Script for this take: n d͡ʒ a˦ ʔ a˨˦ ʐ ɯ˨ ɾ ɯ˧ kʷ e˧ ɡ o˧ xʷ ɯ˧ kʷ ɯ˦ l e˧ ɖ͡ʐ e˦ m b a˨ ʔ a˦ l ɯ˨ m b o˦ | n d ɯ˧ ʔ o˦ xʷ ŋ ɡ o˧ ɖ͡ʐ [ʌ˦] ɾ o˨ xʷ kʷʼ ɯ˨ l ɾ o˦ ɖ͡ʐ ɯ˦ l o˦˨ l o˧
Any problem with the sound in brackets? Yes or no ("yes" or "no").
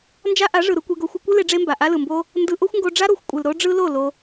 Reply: yes